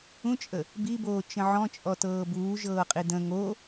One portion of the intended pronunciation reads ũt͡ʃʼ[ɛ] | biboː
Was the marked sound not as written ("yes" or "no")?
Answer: yes